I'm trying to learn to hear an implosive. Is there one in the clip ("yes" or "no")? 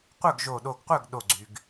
yes